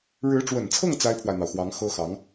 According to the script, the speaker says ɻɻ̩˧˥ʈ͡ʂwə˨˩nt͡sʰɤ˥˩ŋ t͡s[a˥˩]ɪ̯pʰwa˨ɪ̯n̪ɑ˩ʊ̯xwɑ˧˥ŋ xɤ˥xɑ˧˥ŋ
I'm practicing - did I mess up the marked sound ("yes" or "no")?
yes